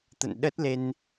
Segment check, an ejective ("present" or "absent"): absent